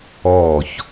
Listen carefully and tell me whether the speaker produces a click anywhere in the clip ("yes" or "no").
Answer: no